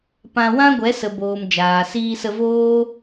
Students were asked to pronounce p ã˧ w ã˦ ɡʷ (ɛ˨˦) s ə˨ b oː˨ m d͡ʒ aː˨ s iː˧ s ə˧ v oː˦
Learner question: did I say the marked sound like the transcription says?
yes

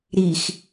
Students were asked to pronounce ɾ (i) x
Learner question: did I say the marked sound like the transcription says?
yes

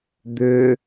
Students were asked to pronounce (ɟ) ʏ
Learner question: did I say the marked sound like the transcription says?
no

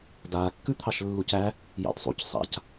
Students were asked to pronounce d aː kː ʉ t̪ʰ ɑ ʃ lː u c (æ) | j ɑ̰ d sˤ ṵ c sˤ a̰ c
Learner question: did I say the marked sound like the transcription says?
yes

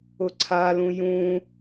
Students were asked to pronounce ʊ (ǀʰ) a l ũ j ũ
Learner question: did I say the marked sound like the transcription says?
yes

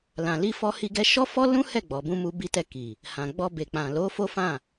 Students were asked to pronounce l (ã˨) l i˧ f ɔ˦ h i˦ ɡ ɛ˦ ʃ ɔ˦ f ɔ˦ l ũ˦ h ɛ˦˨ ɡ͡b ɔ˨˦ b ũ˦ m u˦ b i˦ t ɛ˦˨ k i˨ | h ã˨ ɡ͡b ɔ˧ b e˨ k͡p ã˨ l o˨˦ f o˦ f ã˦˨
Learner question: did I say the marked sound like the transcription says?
yes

